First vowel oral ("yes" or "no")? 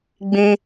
no